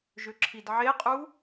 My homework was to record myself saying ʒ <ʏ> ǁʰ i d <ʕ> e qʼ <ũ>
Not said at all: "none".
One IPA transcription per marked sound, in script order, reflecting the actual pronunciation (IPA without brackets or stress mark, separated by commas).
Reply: ʏ, ʕ, u